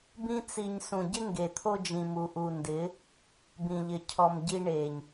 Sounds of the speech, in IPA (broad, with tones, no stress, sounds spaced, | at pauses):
b ĩ˧ t͡s i˨ ɲ s ũ˨ ɟ ɪ˦ ŋ ɡ e˨ t̪ʰ o˦ d͡ʒ ĩ˨ m u˨ ʔ u˨ n d ɪ˨˦ | b ĩ˨ ʎ ɪ˨ cʰ ɔ˨ m ɟ i˧ ɳ e˨ ɲ